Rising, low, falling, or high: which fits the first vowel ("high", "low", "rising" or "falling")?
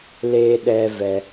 high